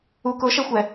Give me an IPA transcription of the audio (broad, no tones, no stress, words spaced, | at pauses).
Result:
u kʊʃɛxʷɛ